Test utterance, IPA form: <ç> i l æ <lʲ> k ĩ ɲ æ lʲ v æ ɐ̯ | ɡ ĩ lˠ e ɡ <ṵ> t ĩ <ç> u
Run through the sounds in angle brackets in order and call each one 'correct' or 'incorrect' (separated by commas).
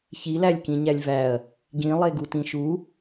correct, correct, incorrect, incorrect